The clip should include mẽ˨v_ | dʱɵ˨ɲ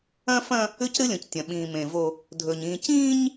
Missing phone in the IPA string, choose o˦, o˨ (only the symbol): o˦